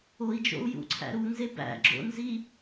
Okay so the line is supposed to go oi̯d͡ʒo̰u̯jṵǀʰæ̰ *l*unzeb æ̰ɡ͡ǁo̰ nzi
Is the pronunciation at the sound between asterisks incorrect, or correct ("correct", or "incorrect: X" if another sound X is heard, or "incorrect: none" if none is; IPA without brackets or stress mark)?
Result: incorrect: ɾ